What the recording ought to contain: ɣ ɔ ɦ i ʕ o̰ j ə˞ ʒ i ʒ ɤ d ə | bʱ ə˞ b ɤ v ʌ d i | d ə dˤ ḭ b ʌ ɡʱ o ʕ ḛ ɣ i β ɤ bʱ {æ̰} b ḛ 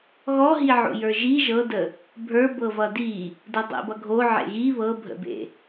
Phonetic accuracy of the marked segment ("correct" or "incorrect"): incorrect